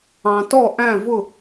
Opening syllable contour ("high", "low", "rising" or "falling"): low